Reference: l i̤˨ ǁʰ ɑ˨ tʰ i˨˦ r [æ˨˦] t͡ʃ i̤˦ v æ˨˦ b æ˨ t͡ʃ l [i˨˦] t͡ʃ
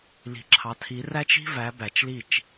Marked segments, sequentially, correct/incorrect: incorrect: æ˦, incorrect: i˦˨

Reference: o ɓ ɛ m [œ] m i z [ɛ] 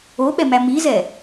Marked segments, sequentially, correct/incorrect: incorrect: æ, correct

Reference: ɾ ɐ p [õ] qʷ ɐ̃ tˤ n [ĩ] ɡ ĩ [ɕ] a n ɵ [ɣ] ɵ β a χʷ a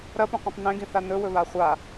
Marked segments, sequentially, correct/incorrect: correct, incorrect: ẽ, incorrect: θ, incorrect: w

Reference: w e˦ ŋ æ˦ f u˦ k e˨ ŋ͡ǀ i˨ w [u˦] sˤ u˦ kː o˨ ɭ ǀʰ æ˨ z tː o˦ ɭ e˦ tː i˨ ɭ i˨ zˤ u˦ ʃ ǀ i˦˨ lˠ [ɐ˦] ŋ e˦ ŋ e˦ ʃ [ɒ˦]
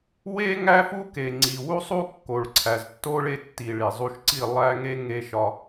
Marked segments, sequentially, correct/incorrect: correct, incorrect: æ˦, correct

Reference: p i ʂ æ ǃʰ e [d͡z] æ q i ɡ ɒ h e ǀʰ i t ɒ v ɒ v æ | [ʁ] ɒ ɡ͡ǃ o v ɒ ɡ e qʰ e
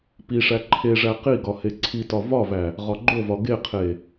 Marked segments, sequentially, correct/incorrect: incorrect: ʐ, correct

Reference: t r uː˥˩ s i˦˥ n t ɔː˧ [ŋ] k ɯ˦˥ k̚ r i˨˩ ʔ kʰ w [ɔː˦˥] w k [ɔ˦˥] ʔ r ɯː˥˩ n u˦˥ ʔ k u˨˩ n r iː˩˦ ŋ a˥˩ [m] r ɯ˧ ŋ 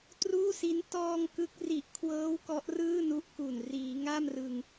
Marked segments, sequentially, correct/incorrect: correct, incorrect: ɤː˦˥, correct, correct

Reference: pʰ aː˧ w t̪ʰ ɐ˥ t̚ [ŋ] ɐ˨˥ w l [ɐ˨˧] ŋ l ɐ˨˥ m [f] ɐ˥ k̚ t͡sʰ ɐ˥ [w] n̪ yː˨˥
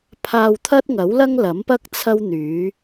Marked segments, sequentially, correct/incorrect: correct, incorrect: ɐ˥, incorrect: p, correct

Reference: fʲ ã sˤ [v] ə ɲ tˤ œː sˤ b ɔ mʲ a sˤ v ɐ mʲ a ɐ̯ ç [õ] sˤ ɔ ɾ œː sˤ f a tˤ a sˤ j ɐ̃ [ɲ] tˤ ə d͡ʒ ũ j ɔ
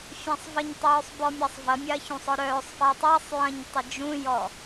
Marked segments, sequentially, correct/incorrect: correct, incorrect: ũ, correct

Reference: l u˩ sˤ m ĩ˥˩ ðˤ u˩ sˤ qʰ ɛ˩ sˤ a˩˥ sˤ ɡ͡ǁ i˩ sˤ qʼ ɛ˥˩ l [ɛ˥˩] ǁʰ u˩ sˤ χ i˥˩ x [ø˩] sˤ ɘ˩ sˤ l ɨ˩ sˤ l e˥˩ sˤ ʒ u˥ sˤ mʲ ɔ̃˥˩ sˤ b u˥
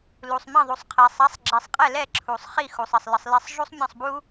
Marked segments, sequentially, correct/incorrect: correct, incorrect: u˩

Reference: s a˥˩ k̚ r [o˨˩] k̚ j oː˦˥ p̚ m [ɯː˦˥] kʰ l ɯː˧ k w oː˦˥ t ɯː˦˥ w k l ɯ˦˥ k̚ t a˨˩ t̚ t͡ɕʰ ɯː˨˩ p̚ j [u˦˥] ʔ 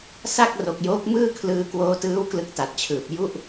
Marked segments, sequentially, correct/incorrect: correct, incorrect: ɯː˥˩, incorrect: u˥˩

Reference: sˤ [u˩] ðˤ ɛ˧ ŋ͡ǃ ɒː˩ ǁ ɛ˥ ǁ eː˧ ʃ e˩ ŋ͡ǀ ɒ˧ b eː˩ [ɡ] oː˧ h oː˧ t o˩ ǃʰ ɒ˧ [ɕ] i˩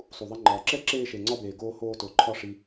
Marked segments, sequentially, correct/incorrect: correct, correct, incorrect: ʂ

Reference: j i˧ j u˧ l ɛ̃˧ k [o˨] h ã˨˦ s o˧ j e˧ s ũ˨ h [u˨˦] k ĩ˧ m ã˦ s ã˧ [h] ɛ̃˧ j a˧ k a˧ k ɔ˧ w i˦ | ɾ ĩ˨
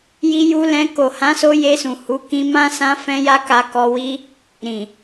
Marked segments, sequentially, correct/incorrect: correct, correct, incorrect: f

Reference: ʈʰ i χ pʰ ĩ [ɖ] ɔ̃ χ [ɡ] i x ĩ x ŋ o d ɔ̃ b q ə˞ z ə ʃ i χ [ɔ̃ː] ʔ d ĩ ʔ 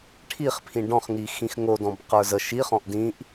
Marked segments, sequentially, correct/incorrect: correct, incorrect: ŋ, incorrect: ɔ̃

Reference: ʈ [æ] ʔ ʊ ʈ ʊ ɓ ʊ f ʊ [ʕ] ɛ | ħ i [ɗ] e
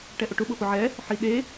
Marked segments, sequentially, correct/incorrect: incorrect: ɛ, correct, correct

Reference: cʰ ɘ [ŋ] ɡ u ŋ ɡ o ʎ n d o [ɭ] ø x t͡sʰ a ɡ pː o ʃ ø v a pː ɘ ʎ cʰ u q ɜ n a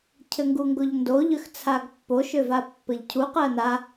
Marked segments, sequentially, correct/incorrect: correct, incorrect: ʎ

